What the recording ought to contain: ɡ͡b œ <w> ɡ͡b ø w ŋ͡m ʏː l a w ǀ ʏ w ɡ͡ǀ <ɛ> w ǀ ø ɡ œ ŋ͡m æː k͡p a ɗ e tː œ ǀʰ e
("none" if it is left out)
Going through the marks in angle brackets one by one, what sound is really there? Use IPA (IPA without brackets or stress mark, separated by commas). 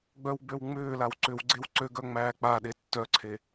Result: w, e